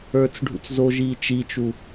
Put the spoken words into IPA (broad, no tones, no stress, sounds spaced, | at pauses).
ə˞ t͡s ɖʱ ṵ t͡s z o ʒ iː t͡ʃ i t͡ʃ u